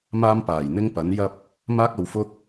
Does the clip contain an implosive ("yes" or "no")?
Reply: no